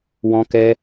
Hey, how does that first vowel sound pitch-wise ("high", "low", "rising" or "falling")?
high